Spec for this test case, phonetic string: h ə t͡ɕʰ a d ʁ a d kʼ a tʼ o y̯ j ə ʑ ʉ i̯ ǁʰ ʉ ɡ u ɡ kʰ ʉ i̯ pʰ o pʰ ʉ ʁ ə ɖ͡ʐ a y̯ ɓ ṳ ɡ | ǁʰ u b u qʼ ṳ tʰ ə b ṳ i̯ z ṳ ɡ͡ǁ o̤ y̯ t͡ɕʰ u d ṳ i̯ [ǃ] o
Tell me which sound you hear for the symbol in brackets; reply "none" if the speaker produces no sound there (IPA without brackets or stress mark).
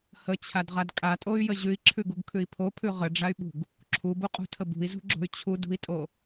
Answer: tʼ